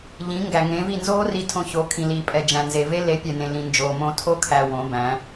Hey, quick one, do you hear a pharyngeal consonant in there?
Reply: no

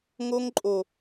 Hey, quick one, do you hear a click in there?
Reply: yes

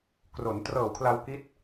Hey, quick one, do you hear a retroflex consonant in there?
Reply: no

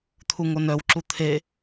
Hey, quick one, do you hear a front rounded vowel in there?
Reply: yes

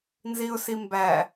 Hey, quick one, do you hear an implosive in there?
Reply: no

